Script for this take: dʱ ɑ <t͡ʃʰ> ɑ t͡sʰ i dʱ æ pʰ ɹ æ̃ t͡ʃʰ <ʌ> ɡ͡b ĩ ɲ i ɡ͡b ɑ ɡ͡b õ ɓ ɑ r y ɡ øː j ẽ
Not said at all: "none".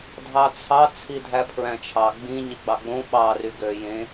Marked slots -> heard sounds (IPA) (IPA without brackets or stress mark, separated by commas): t͡sʰ, ɑ